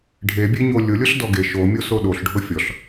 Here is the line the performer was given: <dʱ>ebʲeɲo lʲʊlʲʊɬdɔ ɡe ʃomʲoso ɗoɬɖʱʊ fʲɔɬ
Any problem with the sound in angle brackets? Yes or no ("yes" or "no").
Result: yes